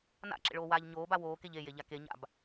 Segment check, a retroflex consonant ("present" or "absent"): present